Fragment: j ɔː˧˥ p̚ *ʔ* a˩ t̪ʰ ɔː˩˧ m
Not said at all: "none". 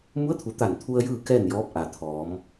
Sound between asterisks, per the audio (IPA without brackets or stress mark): ʔ